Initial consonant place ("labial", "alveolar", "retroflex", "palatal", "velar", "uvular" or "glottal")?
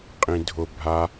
uvular